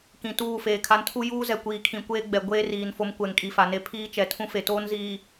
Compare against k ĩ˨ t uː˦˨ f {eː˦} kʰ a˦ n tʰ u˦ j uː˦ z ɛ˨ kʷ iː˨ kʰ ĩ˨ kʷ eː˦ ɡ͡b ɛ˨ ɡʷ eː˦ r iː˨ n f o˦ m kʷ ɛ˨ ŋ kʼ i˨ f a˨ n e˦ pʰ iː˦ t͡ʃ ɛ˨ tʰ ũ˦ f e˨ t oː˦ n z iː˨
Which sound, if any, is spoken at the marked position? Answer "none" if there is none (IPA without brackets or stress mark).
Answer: eː˨